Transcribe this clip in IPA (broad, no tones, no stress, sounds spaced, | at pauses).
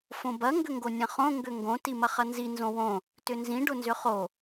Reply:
f õ b ɐ ŋ ɡ ʏ ŋ ɡ o nʲ ɐ̃ χ õ ŋ ɡ ʏ ŋ ɡ õ t i m ɐ χ ɐ n z i n z õ w õ | t ʏ n z ĩ ɖ ʊ n z ʏ χ o